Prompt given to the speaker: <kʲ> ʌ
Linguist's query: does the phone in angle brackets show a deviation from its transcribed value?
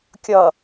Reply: no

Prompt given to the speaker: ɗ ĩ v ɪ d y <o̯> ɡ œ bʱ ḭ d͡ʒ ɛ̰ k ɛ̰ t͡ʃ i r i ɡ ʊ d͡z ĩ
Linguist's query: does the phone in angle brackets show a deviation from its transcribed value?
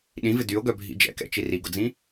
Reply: no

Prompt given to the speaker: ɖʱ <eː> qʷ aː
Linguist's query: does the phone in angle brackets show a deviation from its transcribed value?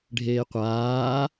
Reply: no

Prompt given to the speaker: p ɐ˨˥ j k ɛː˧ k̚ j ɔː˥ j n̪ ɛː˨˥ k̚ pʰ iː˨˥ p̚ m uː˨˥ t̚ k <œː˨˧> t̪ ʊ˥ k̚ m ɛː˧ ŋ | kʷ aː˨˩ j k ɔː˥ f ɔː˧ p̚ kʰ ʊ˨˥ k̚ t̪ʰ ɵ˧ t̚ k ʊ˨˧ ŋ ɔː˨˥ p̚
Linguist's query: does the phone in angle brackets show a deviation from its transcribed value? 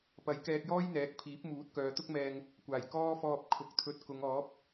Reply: no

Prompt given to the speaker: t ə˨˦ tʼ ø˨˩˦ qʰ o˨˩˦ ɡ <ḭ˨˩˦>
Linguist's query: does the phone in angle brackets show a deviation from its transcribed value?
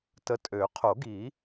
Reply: yes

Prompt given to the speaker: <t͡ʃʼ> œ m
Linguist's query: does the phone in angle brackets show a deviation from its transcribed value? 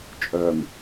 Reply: no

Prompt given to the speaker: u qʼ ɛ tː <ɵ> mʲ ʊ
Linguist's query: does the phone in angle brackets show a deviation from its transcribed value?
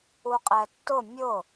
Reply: yes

